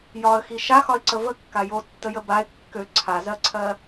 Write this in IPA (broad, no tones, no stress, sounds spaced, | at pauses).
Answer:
j ɒ ə̯ x i ʃ a x ɒ ɪ̯ ǀ ə v ə kː a j o tː ə j ə b a ɪ̯ kː ø ǀʰ a z ɜ ǀʰ ɜ